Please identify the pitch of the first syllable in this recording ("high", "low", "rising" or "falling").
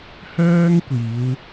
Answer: high